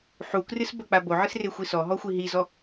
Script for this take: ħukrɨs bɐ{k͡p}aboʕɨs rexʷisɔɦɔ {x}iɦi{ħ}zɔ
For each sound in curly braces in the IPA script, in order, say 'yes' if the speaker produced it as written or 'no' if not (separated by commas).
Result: yes, no, no